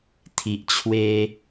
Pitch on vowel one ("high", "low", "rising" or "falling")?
low